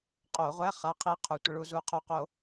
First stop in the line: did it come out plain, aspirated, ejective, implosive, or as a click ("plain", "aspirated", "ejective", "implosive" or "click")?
ejective